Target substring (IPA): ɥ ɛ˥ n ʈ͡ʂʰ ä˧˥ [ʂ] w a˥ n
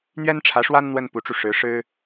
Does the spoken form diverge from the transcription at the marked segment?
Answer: no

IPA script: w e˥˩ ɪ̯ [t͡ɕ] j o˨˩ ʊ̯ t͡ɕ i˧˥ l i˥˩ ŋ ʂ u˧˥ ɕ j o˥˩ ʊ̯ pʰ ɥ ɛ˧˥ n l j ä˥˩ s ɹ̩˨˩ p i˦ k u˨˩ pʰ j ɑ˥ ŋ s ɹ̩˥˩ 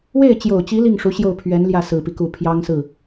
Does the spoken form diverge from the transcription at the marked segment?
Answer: no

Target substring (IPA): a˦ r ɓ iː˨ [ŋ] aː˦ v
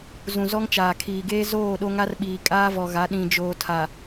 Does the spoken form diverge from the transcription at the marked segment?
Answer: yes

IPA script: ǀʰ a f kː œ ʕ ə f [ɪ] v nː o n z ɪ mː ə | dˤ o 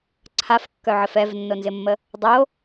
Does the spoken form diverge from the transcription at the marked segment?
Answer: yes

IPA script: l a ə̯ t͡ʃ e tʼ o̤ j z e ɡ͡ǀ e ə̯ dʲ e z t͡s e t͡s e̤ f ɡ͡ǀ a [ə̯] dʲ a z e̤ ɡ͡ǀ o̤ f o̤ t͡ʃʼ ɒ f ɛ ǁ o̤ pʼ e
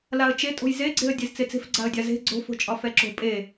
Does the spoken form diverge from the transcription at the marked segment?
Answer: no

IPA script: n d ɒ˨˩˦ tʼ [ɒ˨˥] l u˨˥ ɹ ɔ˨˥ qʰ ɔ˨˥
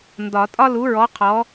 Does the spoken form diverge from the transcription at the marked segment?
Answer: yes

